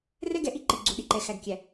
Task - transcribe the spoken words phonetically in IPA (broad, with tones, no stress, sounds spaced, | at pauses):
r ɛ˦ ɡ ɛ˨ ʔ i˦ ǃ i˨ ɡ͡ǀ u˨ ɗ i˨ ǃ ɛ˨ x æ˨ ɡ kʲ æ˨